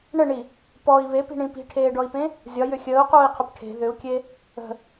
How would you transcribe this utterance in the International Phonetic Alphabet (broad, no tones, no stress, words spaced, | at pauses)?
ɳəɳi | pɔi̯ βepi̤ɳĩ pi̤ʈʰeːɖɔi̯pẽ | zʲɒjʏ xʲəːu̯quːi̯qʰʏp ʈʰe̤ ðʏu̯kʲe | ə̤